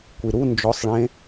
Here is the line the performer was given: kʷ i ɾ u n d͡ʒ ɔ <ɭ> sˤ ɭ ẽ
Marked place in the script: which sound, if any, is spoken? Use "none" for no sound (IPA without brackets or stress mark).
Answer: none